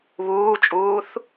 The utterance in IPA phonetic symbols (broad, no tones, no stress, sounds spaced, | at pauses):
β uː t͡ʃʼ uː θ